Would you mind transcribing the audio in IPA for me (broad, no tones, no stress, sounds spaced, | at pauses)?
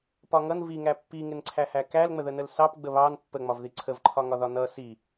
p ɒ ŋ ʌ n v i ŋ æ pː i ŋ ɪ n ǀʰ æ h æ k æ l ŋ͡m ə ð ə n ə l s ɑ p ɡ͡b ə β ɑ n pː ə ŋ͡m ɒ v ð i ǀʰ ə v ǃʰ ɒ ŋ ɒ ð ɒ n ʌ s i